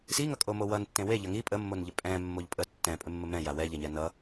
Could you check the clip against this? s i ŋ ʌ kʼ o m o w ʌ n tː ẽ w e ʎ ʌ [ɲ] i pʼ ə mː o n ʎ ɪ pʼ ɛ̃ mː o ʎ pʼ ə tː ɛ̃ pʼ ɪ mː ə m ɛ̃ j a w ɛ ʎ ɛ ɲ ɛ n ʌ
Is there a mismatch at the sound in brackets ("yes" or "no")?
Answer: yes